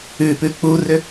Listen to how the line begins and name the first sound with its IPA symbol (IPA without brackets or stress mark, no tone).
ʉ